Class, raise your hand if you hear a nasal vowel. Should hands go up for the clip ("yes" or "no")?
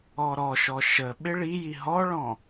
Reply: yes